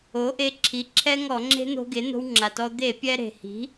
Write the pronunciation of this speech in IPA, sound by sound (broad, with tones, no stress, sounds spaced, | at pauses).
o˩˥ ʔ e˧ ǁʰ i˩˥ ǁʰ ɛ˦˥ ŋ ɔ˧˩˧ ŋ͡ǁ e̤˦˥ n̪ o̤˧ ɡ e˩˥ n̪ o̤˧ w ŋ͡ǁ a˩ t ɔ˧ d̪ e˧˩˧ pʲ ɛ˧ ɾ e̤˩ h i̤˩˥